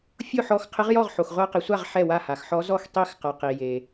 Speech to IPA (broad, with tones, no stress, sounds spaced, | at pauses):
fʲ ʊ˥˨ ħ ɔ˧˥ x qʰ ɪ˧˥ ʁ j ɔ˥˨ ʁ ħ o˨ x ʁʷ a˧˥ q i˨ sʷ a˥˨ ʁ ħ ɛ˥˨ w a˥˨ h a˨ x ħ ɔ˧˥ z ɔ˥˨ x tˤ i˧˥ x q a˨ q i˨ j e˨